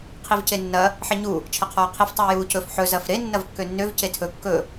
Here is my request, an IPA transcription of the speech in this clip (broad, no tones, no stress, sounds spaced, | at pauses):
qʰ i v c e nː ɐ | ħ ɛ ɲ u | t͡ʃʰ ɐ qʰ ɔː qʰ i f tˤ ɵː j uː c ɵ f ħ ɵ z ɐ f ɾ e nː ɐ v kː ø nː ø v c e tʰ ɵ kː ɵ